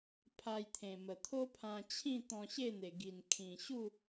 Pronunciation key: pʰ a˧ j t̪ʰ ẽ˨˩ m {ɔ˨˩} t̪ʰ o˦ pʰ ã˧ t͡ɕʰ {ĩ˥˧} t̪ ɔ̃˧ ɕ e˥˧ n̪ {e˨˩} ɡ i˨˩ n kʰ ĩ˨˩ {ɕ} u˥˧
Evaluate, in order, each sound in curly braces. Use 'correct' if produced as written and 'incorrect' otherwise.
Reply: incorrect, correct, correct, correct

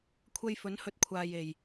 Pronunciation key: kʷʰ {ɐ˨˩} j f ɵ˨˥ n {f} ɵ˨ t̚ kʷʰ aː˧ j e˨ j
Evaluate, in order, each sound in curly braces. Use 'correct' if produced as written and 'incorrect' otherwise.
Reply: incorrect, incorrect

